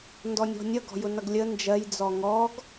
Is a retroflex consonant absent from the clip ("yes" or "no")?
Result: yes